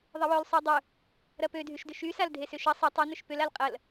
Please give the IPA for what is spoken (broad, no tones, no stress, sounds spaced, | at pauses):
ðˤ ɪ w œ l sˤ y dˤ ʊ | ɾ ɐ p ø dʱ y ʃ d ʏ ʃ y s a l dʱ e s ʏ ʃ ɐ sˤ ə tˤ o n ʏ ʃ p ʏ l a l qʼ ɐ l